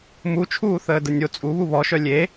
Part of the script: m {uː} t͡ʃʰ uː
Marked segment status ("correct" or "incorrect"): incorrect